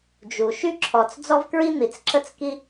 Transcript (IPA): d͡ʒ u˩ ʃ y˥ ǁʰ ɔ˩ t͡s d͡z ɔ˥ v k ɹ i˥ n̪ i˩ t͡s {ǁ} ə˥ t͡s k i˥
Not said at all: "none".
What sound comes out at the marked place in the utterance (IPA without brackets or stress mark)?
ǁ